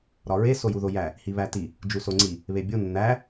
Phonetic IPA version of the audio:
ɾ ɒ ɹ e s o j u ð o j æ | h i β æ t i | d͡ʒ u s o ŋ͡ǀ i | β e bʲ o nː æ

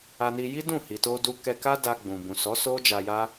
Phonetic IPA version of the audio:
a˧ n i˧ j i˦ d ũ˦˨ h i˨ t o˧ d u˧ k ɛ˧ k a˦ d a˧ ɡ͡b ũ˨ b ũ˨ s ɔ˨˦ s o˦ d͡ʒ a˧ j a˦

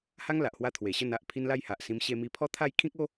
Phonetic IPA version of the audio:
h a˦ ŋ l a˨ ʔ h w a˧ t̪ʰ w e˨˩ ɕ ə˥˧ n a˦ ʔ pʰ i˦ n l a˥˧ j h a˨ ʔ s ĩ˧ m ɕ e˧ m i˧ pʰ ɔ˦ t̪ʰ a˥˧ j kʰ ĩ˦ k̚ o˦

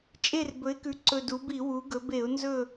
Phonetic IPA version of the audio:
t͡ʃʼ e˦˨ r b ɵ˩˥ ɪ̯ k ʉ˩˥ ǀ ɵ˨˩ d u˩˧ b i˧˩˧ w u˩˧ ɡ ɵ˩˧ b e˧˩˧ ʊ̯ n z ɵ˦˨

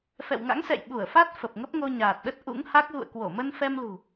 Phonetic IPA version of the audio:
f ɛ̰˧˨ w ŋ a̰˧˥ ŋ s ɛ̰˧˨ j ɓ u˧˩ ə̯ f a˦˥ t̚ f ə˨˩ p̚ ŋ ə˦˥ p̚ ŋ o˧ ɲ aː˨˩ t̚ ɗ ə˦˥ t̚ ʔ ṵ˧˥ ŋ h a˦˥ k̚ ɣ ṵ˧˨ ə̯ k w o˧˩ m ə˧ n f ɛ˧ m l ṳ˨˩

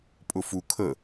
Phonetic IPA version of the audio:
pʼ ʊ f u kʰ ə

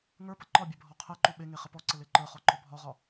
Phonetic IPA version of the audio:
ŋ ə˞ p ə ǃ ɒ bʲ ɛ bʱ ɔ qʰ ɛ ǃ u ɓ e ŋ e χ ə p ɔ ǀ ə l e ǃ ə˞ χ ɔ ǃ ɔ bʱ ɒ ʁ ɒ

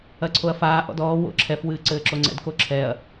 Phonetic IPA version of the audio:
ɐ ǀʰ o ɐ̯ f aː ʔ ɔ̰ d ɔː w o̰ ǁʰ ɛ f w ɨː ǀ ɘː ǁ o ŋ͡ǀ ɛ̰ d k o ǁʰ ɛː ɐ̯

